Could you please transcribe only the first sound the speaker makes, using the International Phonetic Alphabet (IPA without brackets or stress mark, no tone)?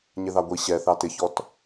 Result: ɲ